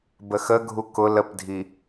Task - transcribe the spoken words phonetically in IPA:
b ə x ə ɡʱ u k ʊ l ə p dʱ i

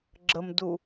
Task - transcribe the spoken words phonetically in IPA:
ɡ͡ǁ ə m d u

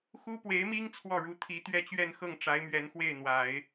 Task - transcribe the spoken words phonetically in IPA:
x u˥ p w e˧˥ ɪ̯ m i˥ ŋ t͡sʰ w ɔ˥˩ ɻ u˧˥ t̪ʰ i˧˥ t̪ ɥ ɛ˥˧ t͡ɕ ɥ ɛ˥˧ n x ɤ˥˩ ŋ ʈ͡ʂ a˧˥ ɪ̯ m ɥ ɛ˧˥ n x w e˥˩ ɪ̯ n̪ w a˨˩˦ ɪ̯

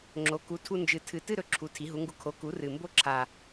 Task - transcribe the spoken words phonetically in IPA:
ŋ͡ǁ o˩˥ k u˩˥ tʰ u˧ n d͡ʒ ɨ˨˩ tʰ ɨ˨˩ t ɨ˥˧ ɾ ɵ˩˥ ǁʰ u˨˩ tʰ i˩˥ ɦ u˩˥ ŋ ɡ u˧ kʰ o˩˥ k u˩˥ r ɨ˨˩ m b o˥˧ ǁʰ a˨˩

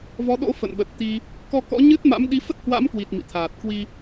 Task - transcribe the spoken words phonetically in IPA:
v ɔ˨˦ ɗ o̰˧˥ f ə̰˧˨ n ɓ ə˨˩ t̚ t̪ i˧ | k ɔ˧ k ɔ̰˧˥ ɲ ɨ˦˥ t̚ m a̰˧˥ m ɗ i˨˦ f ə˦˥ t̚ h w a̰˧˥ m k w i˨˩ t̚ m ḭ˧˨ t̪ʰ aː˨˩ t̚ k w i˧

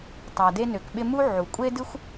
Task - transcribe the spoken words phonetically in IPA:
tˤ a˨ d e˦ n ø˨ k ɓ ɪ˦ m u˥ ʕ u˩ kʷʼ e˥ d ɨ˥ xʷ

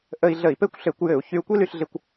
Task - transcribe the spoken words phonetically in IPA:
ʔ ə˧ i̯ ɮ ə˧˩˧ i̯ p ɘ˥ kʷ ɬ ɘ˧˩˧ kʷ j ɘ˧˩˧ u̯ ç y˧ u̯ kʷ i˥ l y˧ ɬ ɮ ɪ˧ kʷ

